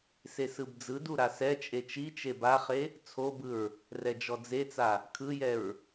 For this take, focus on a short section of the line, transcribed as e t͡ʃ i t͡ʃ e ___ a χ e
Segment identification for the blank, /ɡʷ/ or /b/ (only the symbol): b